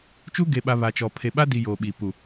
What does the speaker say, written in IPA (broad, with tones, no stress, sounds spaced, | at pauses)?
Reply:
t͡ʃ u˦ ɡ e˨ ɓ a˨ β a˨ t͡ʃ ɔ˨ pʰ e˨ ɓ a˦ d i˨ j oː˨ ɓ iː˨ p u˨